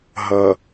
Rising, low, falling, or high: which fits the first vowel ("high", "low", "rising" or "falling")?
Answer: low